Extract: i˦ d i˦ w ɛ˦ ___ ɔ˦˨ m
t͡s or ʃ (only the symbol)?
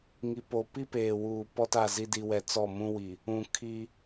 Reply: t͡s